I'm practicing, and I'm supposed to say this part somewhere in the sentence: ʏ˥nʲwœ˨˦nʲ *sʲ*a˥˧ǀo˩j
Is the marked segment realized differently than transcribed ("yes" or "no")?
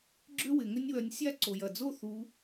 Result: no